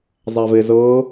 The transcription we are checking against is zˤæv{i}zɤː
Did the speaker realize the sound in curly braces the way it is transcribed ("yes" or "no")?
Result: no